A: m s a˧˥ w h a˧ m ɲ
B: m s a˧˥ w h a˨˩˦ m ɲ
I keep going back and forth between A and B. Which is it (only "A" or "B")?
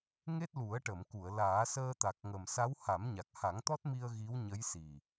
B